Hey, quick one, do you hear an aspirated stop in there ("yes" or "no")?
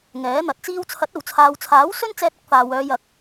yes